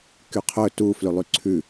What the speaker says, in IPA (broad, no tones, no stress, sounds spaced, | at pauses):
k y qʰ ɵ t u f l ʉ lˠ y ǀʰ ʉ